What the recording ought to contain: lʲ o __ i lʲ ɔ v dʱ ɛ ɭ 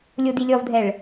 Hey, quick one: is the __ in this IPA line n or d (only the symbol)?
d